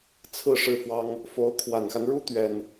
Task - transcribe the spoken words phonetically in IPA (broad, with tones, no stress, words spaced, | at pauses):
t͡sʰɹ̩˥˧ ʂɻ̩˥˩fwɑ˥ŋ | fo˧˥ʊ̯ kʰwa˨˩nxa˦nɻu˥ t̪ɥɛ˥n